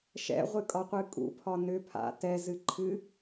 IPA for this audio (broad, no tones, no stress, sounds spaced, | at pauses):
ʃ ɛ̰ ʁʷ ɨ kʼ ɒ qʷ ɨ kʼ ṵ pʰ ɒ n ʏ pʰ a̰ t ɛ z ɨ ǃʰ ɨ